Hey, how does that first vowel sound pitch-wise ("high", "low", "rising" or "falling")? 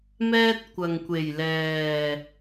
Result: high